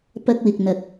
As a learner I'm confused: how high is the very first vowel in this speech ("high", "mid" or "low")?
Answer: low